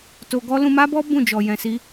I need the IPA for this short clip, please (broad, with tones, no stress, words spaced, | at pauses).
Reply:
to˧ɡɔ˦ lũ˧ma˦bɔ˦ bũ˦˨d͡ʒɔ˨ jɛ̃˨si˧